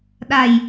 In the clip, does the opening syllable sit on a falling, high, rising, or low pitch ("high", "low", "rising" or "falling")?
low